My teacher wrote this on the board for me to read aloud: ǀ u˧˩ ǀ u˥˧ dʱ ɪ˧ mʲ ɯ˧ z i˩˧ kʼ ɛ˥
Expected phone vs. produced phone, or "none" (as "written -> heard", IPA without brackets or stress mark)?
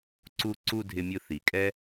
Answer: z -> θ